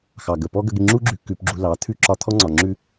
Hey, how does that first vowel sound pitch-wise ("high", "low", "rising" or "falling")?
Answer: low